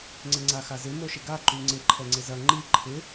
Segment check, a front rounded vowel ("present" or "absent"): present